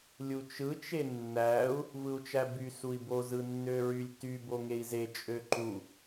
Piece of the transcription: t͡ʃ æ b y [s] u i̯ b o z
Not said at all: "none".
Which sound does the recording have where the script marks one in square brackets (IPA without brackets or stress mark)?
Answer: s